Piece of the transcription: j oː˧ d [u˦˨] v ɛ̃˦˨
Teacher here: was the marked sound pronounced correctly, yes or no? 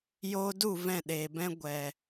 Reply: yes